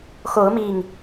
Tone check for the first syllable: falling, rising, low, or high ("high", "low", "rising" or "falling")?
rising